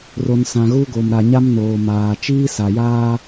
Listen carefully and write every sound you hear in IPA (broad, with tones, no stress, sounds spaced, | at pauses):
r o˨ n s ã˨ ɣ u˦ ɡ o˨ m ɾ a˨ ɲ a˦ m n oː˨ m aː˨ t͡ʃ iː˦ s a˨ j aː˦